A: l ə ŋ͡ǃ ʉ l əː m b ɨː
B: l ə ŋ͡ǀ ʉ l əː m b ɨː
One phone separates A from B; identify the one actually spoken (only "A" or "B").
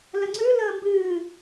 B